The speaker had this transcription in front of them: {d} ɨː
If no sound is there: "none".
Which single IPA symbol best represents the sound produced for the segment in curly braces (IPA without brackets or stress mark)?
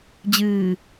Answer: d͡ʑ